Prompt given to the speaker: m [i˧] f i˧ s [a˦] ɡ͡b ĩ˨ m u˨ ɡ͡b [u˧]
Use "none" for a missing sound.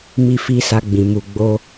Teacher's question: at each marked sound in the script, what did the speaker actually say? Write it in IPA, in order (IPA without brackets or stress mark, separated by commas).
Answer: i˧, a˧, o˧